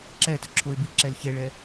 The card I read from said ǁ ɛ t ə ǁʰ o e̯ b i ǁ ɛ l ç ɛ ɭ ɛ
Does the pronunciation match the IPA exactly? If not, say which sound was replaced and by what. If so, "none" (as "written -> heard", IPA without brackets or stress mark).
none